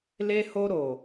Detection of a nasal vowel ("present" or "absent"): absent